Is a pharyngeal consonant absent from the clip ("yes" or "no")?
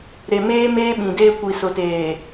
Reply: yes